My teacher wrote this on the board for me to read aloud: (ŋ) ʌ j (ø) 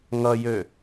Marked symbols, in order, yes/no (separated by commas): yes, yes